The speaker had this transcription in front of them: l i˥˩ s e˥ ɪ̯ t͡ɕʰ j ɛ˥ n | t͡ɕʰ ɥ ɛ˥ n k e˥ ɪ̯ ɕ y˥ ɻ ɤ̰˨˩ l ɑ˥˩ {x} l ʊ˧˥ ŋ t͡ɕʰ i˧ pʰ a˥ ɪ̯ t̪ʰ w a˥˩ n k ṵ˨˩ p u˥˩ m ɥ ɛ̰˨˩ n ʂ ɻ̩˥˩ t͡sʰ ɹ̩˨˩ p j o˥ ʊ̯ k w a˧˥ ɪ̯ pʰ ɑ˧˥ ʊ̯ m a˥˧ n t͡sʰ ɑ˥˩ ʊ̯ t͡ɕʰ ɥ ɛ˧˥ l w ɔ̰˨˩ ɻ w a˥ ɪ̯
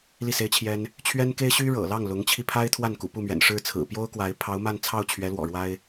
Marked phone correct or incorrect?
incorrect